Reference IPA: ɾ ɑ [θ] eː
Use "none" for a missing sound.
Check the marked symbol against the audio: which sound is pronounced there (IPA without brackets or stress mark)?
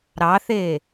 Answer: θ